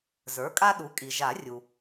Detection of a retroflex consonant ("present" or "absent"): absent